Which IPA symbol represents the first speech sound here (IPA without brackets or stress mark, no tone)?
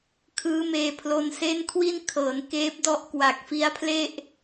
kʰ